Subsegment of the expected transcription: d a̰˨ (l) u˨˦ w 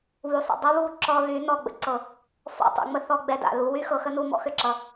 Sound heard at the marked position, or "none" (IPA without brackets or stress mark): l